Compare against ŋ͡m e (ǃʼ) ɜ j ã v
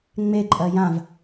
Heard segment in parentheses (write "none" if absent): ǃʼ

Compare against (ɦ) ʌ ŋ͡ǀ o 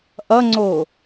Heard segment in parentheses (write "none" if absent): ʔ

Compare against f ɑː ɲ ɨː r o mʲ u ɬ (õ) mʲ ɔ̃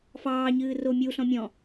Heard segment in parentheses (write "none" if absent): ɔ̃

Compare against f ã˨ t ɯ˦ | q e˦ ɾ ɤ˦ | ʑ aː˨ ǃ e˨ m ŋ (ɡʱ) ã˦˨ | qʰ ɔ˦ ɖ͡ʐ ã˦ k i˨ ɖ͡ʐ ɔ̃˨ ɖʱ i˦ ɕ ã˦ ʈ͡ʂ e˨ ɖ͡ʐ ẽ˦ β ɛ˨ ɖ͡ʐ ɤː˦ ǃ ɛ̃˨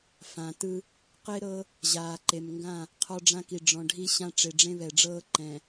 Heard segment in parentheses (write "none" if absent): ɡ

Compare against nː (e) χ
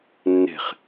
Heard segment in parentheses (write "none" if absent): e̤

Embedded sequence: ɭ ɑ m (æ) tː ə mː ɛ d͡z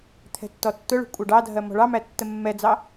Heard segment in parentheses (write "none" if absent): æ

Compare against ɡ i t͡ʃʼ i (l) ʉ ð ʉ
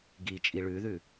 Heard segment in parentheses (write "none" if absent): ɭ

